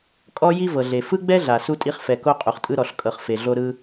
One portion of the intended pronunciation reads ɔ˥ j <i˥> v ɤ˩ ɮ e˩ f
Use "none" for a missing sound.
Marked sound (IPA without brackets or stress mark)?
i˥